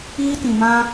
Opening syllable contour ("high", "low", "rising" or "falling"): high